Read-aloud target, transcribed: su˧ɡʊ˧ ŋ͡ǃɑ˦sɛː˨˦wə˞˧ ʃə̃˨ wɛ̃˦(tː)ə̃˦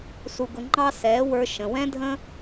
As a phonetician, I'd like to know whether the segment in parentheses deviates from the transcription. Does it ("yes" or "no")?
yes